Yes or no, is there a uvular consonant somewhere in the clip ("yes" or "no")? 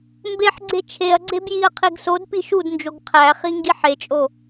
yes